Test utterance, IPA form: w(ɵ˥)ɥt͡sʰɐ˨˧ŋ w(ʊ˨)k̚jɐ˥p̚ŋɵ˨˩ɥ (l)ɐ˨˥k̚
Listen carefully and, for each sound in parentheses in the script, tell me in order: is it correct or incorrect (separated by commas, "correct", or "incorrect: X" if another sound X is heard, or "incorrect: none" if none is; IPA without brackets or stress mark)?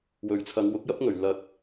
incorrect: ɵ˨, incorrect: ʊ˨˥, correct